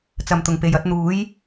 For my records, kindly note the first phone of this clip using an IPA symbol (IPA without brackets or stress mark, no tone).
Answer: t͡s